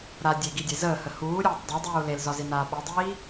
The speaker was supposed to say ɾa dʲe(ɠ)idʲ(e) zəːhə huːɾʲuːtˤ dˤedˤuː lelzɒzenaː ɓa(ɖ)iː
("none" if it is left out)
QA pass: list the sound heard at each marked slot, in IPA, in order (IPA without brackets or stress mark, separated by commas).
ɡ, e, dˤ